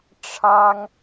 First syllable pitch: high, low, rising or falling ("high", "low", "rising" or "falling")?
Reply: high